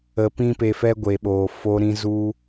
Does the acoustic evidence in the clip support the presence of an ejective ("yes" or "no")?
no